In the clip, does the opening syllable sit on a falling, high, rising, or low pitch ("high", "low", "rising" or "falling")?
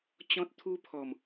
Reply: high